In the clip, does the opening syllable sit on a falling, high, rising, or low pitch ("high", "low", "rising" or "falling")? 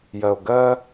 low